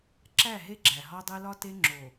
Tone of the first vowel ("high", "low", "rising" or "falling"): falling